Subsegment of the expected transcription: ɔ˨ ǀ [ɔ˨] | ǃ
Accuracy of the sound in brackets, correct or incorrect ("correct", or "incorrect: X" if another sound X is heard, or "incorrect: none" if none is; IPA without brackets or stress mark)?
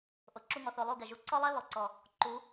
correct